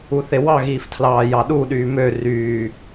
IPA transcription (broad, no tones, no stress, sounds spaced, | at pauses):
u θ e w ɑ ɣ iː f tʰ l ɑː j ɑ ɗ u ɗ yː m ø r yː